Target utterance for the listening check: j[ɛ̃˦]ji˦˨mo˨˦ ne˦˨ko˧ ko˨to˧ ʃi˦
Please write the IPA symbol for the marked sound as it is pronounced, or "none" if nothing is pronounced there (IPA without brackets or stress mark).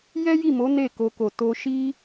ɛ˦